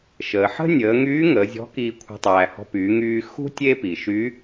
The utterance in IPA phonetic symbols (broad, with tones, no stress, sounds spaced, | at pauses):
ʃ əː˩ ħ ə̤˥ nʲ əː˩˧ ŋ yː˧˥ ŋ əː˩˧ zʲ ɔ̤˧˥ k iː˧ kʷʰ ə̤˧ tˤ æː˩ h ɔ̤˧ p y˩˧ ŋ yː˧ x ṳ˥ tʲ eː˥ p i˩ ʃ y˧˥